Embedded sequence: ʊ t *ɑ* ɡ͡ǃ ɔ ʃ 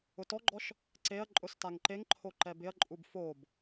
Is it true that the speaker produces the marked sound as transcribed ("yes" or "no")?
no